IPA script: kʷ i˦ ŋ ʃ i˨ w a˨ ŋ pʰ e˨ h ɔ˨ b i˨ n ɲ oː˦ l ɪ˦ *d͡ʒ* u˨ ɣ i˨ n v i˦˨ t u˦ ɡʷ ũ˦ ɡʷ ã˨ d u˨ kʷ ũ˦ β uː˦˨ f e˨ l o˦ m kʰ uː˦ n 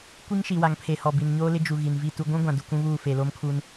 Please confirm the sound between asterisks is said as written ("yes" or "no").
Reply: yes